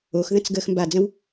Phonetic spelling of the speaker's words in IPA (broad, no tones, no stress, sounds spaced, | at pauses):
o x ð ə̃ t͡s ɡ əː x m b a d͡z ə̃ w